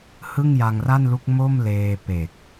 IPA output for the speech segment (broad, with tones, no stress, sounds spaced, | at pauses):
h ɯ˥˩ ŋ j a˧ ŋ r a˥˩ n l u˦˥ k̚ m o˥˩ m l eː˧ p e˨˩ k̚